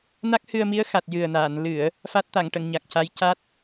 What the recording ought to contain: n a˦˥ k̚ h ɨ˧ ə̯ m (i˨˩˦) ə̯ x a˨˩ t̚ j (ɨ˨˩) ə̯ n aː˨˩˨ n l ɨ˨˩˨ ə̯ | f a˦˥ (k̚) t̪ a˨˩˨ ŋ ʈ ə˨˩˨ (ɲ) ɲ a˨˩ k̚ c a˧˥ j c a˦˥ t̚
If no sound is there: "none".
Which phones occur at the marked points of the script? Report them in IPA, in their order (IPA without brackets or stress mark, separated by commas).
i˧˥, ɨ˨˩, t̚, ŋ